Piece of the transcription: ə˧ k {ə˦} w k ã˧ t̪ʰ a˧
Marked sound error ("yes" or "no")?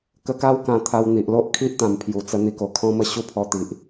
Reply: yes